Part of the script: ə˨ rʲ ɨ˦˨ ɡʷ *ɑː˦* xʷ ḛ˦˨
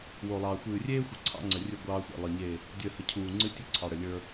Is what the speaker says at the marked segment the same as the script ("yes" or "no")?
yes